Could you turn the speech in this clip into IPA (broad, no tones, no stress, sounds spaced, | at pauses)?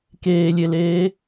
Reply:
k eː lʲ e l eː